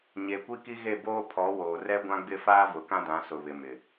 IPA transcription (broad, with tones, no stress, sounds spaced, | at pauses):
ɲ e˨ kʷ i˦ k i˦ ɣ e˦˨ b oː˦ pʰ ɔ˨˦ w oː˨ r ɛ˦ ɡʷ ã˦ ɡ͡b ɪ˦ f aː˦ v ʊ˨ k ã˦ d ã˨˦ s ʊ˨ β ɪ˨ m ɪ˨